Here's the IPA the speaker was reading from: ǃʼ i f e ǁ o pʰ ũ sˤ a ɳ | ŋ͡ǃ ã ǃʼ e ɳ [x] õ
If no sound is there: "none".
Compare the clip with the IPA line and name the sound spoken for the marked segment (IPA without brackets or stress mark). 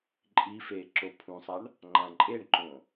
ǃ